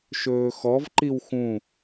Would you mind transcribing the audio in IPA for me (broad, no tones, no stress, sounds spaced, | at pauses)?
ʃ ɵː x ɔ v ǃ i w x ũ